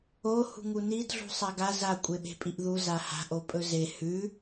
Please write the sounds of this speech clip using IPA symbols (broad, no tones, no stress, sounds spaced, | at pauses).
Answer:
o h ṳ ŋ u n i d ɮ ṳ sˤ a ɡ a z a kʷʼ e ɓ e̤ pʼ i ʔ ð u z a h a̤ ʔ o pʼ ɵ z e h ʉ